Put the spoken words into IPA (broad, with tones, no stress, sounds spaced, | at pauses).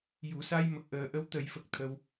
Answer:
j u˨˩˨ s a˧ j m ə˨˩ k̚ ʔ əː˨˩ ʔ ə˧˥ w t̪ ə˨˩˦ j f ə˨˩ k̚ t̪ʰ ə˧ w